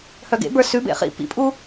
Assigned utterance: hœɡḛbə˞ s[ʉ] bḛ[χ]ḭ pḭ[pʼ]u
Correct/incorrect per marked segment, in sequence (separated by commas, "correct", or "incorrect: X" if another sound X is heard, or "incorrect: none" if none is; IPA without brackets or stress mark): correct, correct, correct